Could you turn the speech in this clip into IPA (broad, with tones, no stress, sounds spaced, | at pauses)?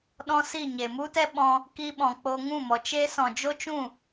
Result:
ɗ ɔ̃˦ s i˦˨ ɲ e˨ m u˦ t ɛ˦ ɓ ɔ̃˧ | k i˧ ɓ ɔ̃˨ k͡p o˧ ŋ ũ˦˨ m ɔ˨ t͡ʃ e˦ s ɔ̃˨ d͡ʒ o˦ t͡ʃ ũ˦˨